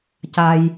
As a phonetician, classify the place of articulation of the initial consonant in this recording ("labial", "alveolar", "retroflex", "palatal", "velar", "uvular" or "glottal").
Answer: palatal